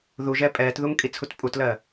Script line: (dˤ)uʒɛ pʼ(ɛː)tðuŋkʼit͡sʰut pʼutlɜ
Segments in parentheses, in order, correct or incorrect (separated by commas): incorrect, correct